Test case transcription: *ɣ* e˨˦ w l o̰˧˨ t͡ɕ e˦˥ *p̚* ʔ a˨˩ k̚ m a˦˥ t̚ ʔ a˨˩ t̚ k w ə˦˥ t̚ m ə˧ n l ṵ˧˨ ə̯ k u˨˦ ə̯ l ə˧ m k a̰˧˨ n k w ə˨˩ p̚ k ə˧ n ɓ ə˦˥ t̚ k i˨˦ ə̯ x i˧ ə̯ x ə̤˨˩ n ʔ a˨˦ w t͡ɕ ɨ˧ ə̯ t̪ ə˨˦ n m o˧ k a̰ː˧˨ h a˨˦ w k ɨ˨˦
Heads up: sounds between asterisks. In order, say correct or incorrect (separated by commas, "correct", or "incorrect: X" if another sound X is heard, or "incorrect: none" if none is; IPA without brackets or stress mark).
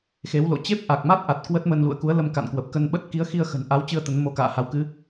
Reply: incorrect: x, correct